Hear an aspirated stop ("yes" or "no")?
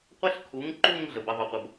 yes